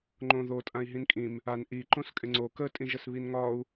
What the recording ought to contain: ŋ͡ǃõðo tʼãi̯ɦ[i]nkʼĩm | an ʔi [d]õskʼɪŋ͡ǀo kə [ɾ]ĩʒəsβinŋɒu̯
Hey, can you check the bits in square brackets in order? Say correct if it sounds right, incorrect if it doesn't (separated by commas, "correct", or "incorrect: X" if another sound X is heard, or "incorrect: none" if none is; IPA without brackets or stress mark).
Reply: incorrect: ĩ, incorrect: ǃ, incorrect: tʼ